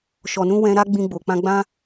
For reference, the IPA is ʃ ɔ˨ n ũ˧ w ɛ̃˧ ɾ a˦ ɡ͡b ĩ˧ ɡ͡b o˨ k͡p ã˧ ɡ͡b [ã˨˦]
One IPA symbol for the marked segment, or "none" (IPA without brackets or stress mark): ã˦